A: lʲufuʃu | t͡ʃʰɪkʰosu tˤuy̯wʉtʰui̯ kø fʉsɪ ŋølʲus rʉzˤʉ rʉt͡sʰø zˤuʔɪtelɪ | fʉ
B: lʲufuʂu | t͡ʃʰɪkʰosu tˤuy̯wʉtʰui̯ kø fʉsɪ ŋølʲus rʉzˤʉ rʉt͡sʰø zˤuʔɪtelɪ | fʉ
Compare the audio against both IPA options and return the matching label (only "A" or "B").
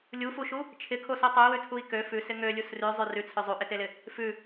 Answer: A